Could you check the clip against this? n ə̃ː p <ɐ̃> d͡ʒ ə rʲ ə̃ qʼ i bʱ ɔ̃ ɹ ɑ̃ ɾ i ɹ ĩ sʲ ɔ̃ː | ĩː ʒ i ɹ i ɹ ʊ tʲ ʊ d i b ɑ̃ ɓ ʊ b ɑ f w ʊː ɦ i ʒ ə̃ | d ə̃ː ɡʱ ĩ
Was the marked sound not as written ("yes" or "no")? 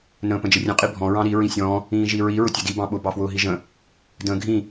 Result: yes